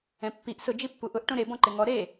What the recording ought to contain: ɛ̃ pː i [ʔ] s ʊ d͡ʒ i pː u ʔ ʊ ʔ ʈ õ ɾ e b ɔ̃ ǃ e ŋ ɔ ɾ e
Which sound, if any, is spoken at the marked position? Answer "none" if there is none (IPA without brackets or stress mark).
ʔ